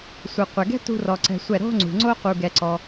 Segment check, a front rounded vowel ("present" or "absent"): absent